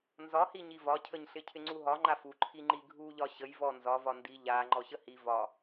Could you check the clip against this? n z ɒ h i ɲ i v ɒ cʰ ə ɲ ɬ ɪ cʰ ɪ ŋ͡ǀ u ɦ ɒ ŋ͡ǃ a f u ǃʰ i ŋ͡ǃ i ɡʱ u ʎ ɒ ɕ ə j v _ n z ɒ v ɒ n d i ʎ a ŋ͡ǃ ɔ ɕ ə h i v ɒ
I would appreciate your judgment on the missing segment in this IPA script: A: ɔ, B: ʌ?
A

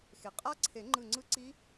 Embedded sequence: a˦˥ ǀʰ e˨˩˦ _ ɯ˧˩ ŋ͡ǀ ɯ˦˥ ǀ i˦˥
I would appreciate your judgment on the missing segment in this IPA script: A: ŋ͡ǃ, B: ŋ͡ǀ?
A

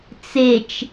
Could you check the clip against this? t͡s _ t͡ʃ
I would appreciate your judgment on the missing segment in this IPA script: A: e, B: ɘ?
A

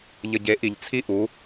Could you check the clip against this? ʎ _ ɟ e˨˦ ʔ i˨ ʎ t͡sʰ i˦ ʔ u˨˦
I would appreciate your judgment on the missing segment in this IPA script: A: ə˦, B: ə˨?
B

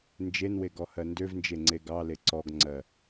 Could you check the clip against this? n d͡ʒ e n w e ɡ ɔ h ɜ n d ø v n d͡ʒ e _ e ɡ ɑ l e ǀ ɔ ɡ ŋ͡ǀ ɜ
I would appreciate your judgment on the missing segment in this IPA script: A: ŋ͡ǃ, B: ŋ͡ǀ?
B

